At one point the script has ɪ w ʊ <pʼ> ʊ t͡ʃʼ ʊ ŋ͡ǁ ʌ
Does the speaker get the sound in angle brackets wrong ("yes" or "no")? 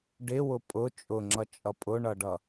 no